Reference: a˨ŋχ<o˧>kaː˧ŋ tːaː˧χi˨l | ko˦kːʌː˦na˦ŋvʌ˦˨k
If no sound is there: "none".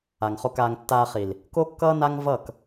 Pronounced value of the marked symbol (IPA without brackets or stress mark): o˧